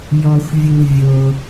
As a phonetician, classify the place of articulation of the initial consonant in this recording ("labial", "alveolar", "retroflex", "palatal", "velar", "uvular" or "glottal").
palatal